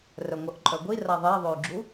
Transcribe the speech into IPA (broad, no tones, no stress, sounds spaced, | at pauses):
r œ ŋʷ œ ʔ ǃʼ œ ɡʷ i r a ðˤ ɛ i̯ ðˤ ø y̯ ɡ͡ǁ u